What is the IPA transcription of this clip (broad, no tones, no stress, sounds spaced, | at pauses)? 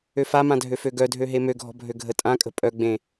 ø f a m ã dʱ ø f ø ɡ œ dʱ ø ɦ e m ø ɡʱ ɔ̤ bʱ ø ɡʱ ə tʼ ã kʼ ə̤ pʼ œ ɡ͡b ẽ